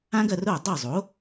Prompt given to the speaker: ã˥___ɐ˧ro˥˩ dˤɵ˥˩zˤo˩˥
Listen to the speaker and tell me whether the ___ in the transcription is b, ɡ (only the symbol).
ɡ